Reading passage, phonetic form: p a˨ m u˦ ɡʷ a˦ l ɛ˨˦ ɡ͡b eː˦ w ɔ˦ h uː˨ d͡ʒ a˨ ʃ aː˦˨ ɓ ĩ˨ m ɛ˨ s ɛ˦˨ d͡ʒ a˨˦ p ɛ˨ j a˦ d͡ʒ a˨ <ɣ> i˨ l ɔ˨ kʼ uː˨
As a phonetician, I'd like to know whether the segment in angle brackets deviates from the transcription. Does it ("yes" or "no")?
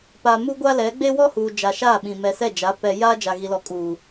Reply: no